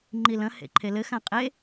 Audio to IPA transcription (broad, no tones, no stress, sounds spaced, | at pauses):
ŋ͡ǃ i l ɐ̃ h ḛ ǃʰ e l ɘ x ã qʼ e